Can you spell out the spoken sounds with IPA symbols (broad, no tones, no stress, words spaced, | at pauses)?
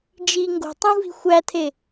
d͡ʒi ŋɡo̤tˤũvi̤ xʷætʰe